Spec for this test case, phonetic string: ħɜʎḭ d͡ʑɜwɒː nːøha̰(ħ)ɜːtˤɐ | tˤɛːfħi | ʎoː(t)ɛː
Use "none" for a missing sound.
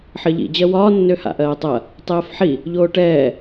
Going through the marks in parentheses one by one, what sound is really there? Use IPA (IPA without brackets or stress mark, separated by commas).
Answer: ʔ, ʈ